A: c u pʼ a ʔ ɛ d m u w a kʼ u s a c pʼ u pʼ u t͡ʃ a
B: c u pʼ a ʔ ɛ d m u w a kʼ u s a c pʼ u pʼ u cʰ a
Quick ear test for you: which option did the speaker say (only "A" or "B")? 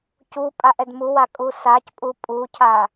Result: B